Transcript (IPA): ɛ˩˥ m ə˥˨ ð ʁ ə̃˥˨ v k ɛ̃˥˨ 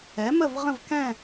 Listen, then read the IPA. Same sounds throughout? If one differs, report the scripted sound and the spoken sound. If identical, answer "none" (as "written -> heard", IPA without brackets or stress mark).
ð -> v